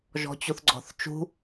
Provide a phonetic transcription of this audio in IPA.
ʒɔ̤t͡ɕuθɡ͡ǀɔ̤θt͡ʃṳ

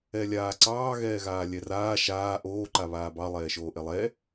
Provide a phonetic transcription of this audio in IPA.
ɛlʲaːǀɑː ɣɛːɣaːlʲɛraː ʃaː ʔoː ǃaβaːbɑ lˠɛːʃoːʔelˠɛ

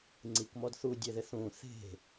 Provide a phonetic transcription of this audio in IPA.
ŋ͡ǀikmɔd θudʲeðɪ θũ θe̤

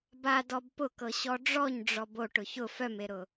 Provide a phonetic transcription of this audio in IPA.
badɔb pʊkɤɕɔ ɖ͡ʐɔɲɖ͡ʐɔb oʈ ʊçʊ fœmeɾʊ

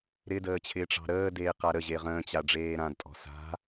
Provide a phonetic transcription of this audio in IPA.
ɾɪdəːt͡ɕʰɪː ʈ͡ʂɑ̤ɾəːdeːqa ɾə ʑeʁə̃ːt͡ɕa ɖ͡ʐeːɾãdtʼɔ̤ sa̤

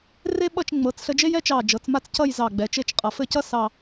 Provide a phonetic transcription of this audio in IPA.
re˥ ɓʌ˥˧t͡ʃ ŋ͡mɤ˩˧t͡sɬə˧d͡ʒe˥j ɛ˥t͡ʃɑ˧˩d͡ʒɤ˩˧t͡sma˥˧t͡s cʌ˥˧j zɑ˧˩ɡ͡bɛ˩˧t͡ʃe˥˧t͡ʃqʼʌ˧˩ fɘ˥˧cʌ˥ sɑ˥˧

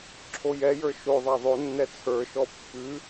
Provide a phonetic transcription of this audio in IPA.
ǁʰojɛjə˞ ʃoðˤa ðˤonːɛ t͡sʰə˞ʃɔ pːʉ

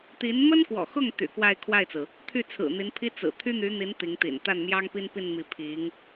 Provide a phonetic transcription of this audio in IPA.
t̪i˧˥n mə˥nkwɔ̰˨˩xʊ˥˩ŋ t̪y̰˨˩ kwa˥˧ɪ̯kʰwa˥˩ɪ̯t͡sɹ̩˩ | t̪ʰy˥˩t͡sʰɹ̩˨˩n̪i˧˥npʰi˥ t͡sɹ̩˨˩ t̪ʰy˥n̪y˧˥n̪i˧˥n t̪i˧˥ŋt̪ḭ˨˩n t̪a˥˩nmjɑ˥ŋpi˥npi˥˧n mi˥˩ pʰi˧˥ŋ

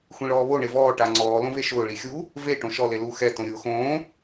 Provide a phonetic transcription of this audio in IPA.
xʷĩɭɔːβo ɳevɔː ʈaŋ͡ǀɔː lõveʃʊː ɭixʲu | ve ʈõʃɔ lelu xɛ tõɾʲʊːxõː

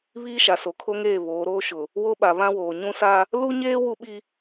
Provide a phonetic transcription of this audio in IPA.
βiː˦ʃa˨ so˨kʰo˦ŋeː˦˨ βoː˨˦ɾoː˦ ʃʊ˨ | wo˦ɓa˨βã˦woː˨ ɲũ˦sa˦ | lu˦ɲeː˦ wu˦ɓi˦

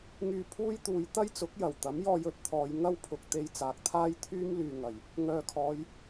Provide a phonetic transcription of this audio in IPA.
ŋyː˧pʰuː˥jt̪uː˨˧j t̪ɐ˥j t͡sʊ˨˥k̚jɐ˨˩wt̪ɐ˨˥m jɔː˧jɵ˨˥t̚t̪ʰɔː˨˧j ŋɐ˥wpʰʊ˨k̚ t̪e˧jt͡saː˨k̚t̪ʰaː˥j t̪ʰyː˥mlyː˨ ŋɐ˨˩j | ŋœː˨kʰɔː˨˧j

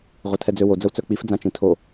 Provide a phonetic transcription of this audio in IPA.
ʁʷətʰɛd͡zøwo d͡zəwt͡sœk͡pif d͡zãt͡ʃĩtʰo

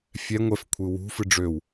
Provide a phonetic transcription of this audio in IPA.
fʲɛ ŋʷɛf kʷʰɯwṳ fɨɖ͡ʐøw

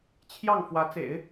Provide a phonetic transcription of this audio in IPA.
t͡ɕʰjɑ˥˩ŋ fwä˧˥t͡sḛ˨˩˦ɪ̯

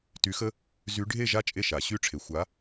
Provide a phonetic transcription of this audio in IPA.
ty˨˦xə˦ | zy˨˦ɖʱe˥˨ʒa˦ t͡ʃʼe˥˨ʃa˨˩˦ɕy˥˨ʈ͡ʂʰe˨˦ xʷa˨˦

